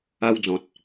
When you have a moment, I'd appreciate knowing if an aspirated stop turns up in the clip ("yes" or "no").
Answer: no